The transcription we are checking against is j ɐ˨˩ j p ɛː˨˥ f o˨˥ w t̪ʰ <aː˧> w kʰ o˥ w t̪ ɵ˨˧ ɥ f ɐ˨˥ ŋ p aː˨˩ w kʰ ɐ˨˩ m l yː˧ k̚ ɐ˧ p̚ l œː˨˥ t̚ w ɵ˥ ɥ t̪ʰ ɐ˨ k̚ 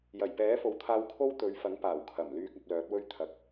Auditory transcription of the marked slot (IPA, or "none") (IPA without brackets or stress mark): aː˧